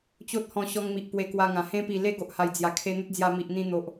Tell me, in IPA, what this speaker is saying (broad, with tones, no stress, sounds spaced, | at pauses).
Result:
t͡ɕ o˦ t̚ h ɔ̃˧ ɕ ɔ˧ ŋ m i˨ ʔ p w e˧ k w a˧ ŋ ã˨˩ h ẽ˧ p i˨˩ l e˦ ɡ o˨ ʔ h a˨˩ j d͡z j a˨˩ kʰ e˧ n̪ ə˦ t̚ d͡z j a˧ m i˨ ʔ n̪ ĩ˧ n̪ o˨ ʔ